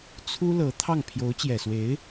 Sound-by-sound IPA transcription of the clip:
t͡sʰ u˥ l ɤ˧˥ t̪ʰ ɑ˥˩ ŋ pʰ j o˧˥ ʊ̯ t͡ɕ j ɛ˨˩ s w e˧˥ ɪ̯

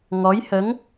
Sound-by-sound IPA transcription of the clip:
ŋ ɔ˧˥ j h ə˧˥ ŋ

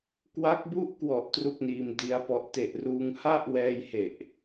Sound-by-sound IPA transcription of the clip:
k w a˦˥ k̚ b u˥˩ ʔ k w ɔ˨˩ ʔ t r u˥˩ k̚ n iː˧ m d i˦˥ a̯ p ɔ˦˥ ʔ t e˨˩ ʔ r uː˧ ŋ h a˥˩ ʔ w ɛː˧ j h e˨˩ ʔ

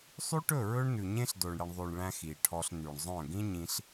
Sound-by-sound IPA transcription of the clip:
sˤ y˦ ʈ ɵ˦˨ ɹ ɵ˦ ɳ n ʉ˨ ɲ ẽ˦ ɬ d o˨ ɳ ɽ i˨ ɳ ðˤ ʉ˨ ɳ ɭ æ̃˧ x i˨ ʈʰ ɔ˧ ɬ n y˨ ɳ zˤ œ̃˦˨ ɡ ĩ˦ ɲ ĩ˧ ɬ

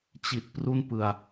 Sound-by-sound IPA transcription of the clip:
t͡ɕ i˨˩ t̚ p r u˥˩ n p ɯ˧ a̯

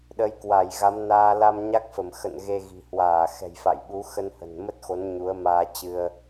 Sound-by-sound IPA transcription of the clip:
ɗ ə˨˦ j k w a˧˩ j ɣ a˨˦ m n aː˧ l a˧ m ɲ a˦˥ k̚ f ə˧˩ m x ə̰˧˨ n ɣ e˧ ɣ i̤˨˩ h w aː˧˩ x ɛ̤˨˩ j f a̰˧˨ j ɓ u˨˦ x ə˧ n h ə̤˨˩ n m ə˦˥ t̚ x o˨˦ n ɲ u˨˦ ə̯ m aː˧ t͡ɕ ɨ˧ ə̯

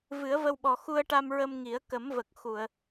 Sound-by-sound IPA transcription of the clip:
v ɨ˨˩˦ ə̯ v ə˧ w ɓ ɔ˨˩ x u˧ ə̯ ʈ a˧ m ɹ ə˧ m ŋ i˨˩˦ ə̯ k ə˨˩˦ m v ə˨˩ k̚ x u˨˩˨ ə̯

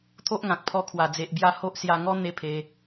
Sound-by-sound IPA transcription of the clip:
t̪ʰ o˦ ʔ ŋ ã˨ k̚ pʰ ɔ˧ kʰ w a˨˩ d͡z e˨ ʔ b j a˥˧ h o˦ ʔ s j a˥˧ ŋ ɔ˦ n̪ e˥˧ pʰ e˧

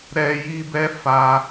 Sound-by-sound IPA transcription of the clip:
ɾ ɛ˦ j i˦ b ɛ˦ f a˧

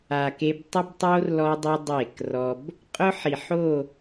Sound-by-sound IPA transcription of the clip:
a˨ k e˦ b tˤ ʊ˦ b tˤ o˦ r l ɔ˦ dˤ i˦ dˤ e˦˨ k r ɔ˦ b | qʼ ʊ˦ ħ i˨ ħ o˦˨

